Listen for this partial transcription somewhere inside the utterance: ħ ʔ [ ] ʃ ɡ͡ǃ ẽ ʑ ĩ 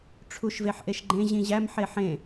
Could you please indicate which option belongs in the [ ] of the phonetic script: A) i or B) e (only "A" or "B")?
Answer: B